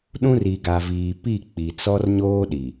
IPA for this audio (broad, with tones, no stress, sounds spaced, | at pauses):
ɗ ũ˦ r i˨ ɡ a˨ v iː˨ p i˦˨ k͡p i˨ t͡s ɔ˦ r ɲ oː˦ ɗ i˨